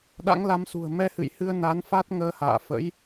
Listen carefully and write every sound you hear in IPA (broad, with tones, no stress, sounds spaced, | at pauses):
ɗ a̰˧˥ ŋ l a˨˦ m s ṳ˨˩ ə̯ m ɛ˧ h ɨ̰˧˨ j h ɨ˧ ə̯ n a˨˦ n f a˦˥ t̚ ŋ əː˧ h a̰ː˧˨ f ə̰˧˥ j